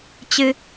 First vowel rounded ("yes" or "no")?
no